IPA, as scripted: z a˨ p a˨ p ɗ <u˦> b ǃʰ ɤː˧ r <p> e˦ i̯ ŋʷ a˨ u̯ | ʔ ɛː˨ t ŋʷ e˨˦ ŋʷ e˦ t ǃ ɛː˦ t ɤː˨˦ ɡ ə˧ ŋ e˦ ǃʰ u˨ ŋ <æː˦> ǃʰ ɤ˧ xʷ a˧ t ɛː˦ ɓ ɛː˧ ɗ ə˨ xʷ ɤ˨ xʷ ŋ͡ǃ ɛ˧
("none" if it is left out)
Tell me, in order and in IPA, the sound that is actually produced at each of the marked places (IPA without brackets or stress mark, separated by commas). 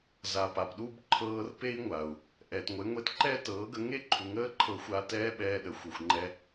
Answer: u˦, p, əː˦